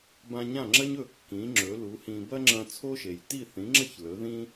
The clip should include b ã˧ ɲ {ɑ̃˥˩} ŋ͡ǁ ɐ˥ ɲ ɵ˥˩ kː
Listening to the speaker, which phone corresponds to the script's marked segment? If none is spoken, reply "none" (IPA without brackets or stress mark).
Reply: ã˥˩